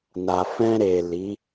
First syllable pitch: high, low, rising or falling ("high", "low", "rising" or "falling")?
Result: low